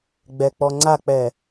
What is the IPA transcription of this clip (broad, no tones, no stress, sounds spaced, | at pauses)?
ɡ͡b ɛ k͡p ɔ ŋ͡ǀ a k͡p ɛ